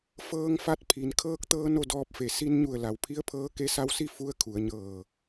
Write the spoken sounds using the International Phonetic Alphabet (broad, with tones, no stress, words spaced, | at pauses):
fɤː˧ŋfa˧t̚pʰi˩n kʰɤː˧k̚t̪ɤː˧ no˥˨dɔː˧p̚fe˧˩ si˧nɲu˧˩ə̯ la˩˧wpʰi˧˥ə̯pʰɤː˧˥ ke˧sa˧wsi˥˨ fu˧˥ə̯kʰu˩˧ə̯ɲɤː˧˩